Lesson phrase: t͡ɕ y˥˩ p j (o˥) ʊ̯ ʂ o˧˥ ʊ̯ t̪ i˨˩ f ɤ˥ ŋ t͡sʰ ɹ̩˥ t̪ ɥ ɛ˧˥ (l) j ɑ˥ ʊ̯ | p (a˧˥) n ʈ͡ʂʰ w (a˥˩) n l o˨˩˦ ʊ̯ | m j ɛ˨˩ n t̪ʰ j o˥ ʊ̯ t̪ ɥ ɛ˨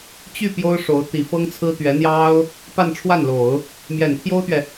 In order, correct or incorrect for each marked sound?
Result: correct, incorrect: n̪, incorrect: a˥˧, correct

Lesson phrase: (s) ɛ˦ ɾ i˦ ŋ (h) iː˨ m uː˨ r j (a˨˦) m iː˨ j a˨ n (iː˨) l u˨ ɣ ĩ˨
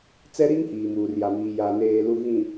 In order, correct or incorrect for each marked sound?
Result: incorrect: t͡s, correct, incorrect: a˨, incorrect: eː˨

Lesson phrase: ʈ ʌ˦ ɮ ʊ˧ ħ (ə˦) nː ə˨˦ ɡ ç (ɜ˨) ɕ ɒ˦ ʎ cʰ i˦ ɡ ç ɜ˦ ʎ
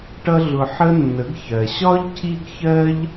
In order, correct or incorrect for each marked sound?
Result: correct, correct

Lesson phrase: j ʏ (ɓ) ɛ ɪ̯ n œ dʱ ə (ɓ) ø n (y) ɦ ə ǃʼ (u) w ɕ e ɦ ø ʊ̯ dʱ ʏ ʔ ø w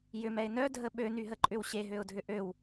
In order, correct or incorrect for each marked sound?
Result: incorrect: m, correct, correct, incorrect: ʏ

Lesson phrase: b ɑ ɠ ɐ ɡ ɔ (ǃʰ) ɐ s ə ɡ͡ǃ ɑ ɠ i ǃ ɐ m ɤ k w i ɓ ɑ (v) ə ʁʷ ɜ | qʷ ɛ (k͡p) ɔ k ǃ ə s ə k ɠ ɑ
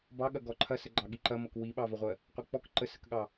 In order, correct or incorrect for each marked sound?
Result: correct, correct, correct

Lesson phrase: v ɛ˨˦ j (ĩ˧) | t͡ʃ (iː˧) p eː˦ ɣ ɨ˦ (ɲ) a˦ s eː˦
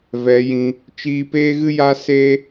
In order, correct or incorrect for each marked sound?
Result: correct, correct, incorrect: j

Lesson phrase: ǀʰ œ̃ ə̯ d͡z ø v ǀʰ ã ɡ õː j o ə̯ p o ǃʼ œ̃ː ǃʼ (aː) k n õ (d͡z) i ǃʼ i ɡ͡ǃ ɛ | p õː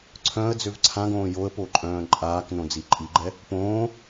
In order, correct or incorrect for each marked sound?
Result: correct, correct

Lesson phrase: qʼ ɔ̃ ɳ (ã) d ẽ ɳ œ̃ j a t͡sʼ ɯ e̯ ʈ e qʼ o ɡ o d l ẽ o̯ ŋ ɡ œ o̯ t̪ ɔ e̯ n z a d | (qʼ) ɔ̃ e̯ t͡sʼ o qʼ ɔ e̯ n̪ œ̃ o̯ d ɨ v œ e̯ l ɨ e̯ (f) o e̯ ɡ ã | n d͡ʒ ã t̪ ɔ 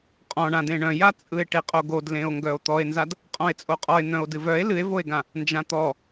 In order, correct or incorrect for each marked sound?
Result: correct, correct, incorrect: v

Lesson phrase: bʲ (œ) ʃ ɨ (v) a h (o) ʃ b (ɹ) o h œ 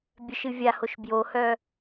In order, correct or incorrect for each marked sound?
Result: correct, incorrect: vʲ, correct, incorrect: j

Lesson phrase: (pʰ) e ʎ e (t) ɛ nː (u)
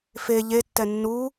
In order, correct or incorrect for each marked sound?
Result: incorrect: f, incorrect: tː, correct

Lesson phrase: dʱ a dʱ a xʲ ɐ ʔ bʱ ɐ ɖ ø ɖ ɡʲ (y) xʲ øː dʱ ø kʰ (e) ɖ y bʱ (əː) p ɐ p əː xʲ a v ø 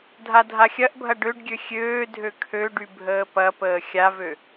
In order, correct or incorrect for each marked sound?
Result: incorrect: ø, incorrect: ø, correct

